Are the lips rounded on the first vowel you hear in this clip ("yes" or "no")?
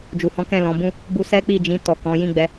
yes